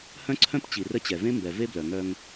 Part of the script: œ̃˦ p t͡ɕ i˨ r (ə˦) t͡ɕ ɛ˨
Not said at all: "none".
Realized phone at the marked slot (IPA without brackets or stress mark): ə˦